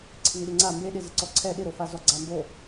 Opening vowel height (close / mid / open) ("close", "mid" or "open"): close